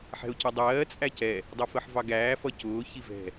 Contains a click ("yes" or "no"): no